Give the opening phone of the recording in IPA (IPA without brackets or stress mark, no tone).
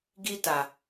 ɡ